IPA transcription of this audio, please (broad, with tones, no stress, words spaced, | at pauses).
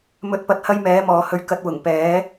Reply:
mɵ˧t̚pɐ˧t̚hɐ˥j mɛː˨˥mɔː˨hɵ˧ɥ kɐ˧t̚wʊ˨˩ŋpɛː˨˥